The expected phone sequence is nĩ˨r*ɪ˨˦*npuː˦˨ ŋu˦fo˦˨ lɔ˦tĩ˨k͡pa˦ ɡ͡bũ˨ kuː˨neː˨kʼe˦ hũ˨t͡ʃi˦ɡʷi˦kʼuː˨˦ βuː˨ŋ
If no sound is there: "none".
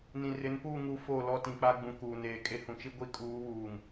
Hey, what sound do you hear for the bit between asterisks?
ɪ˨˦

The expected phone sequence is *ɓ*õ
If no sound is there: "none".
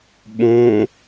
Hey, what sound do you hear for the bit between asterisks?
ɓ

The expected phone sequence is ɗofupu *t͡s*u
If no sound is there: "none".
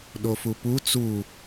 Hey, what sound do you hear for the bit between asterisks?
t͡s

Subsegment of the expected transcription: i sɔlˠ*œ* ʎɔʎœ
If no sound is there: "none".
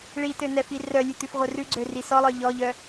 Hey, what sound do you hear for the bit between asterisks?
œ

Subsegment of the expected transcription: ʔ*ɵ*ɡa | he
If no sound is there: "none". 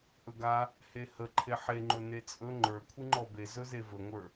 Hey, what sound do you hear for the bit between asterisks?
ɵ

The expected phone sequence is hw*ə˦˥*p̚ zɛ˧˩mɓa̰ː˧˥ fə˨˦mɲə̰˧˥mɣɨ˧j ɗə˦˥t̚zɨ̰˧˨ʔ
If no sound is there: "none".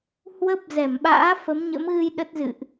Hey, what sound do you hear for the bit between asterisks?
ə˦˥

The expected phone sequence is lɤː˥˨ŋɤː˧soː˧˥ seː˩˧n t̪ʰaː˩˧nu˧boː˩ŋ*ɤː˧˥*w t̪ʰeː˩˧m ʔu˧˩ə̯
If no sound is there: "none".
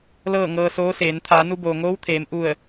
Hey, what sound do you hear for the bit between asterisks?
oː˧˥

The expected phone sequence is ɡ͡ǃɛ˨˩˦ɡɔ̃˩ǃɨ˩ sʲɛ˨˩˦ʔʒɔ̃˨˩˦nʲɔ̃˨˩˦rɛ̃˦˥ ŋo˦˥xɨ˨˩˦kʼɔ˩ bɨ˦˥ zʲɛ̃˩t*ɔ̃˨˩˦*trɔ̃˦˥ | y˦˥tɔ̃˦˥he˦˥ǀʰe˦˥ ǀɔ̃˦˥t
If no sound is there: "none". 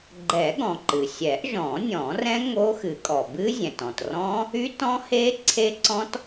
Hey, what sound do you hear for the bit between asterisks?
ɔ̃˩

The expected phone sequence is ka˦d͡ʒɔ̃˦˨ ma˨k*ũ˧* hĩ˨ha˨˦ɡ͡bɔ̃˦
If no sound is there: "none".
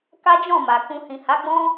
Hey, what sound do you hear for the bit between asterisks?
ũ˧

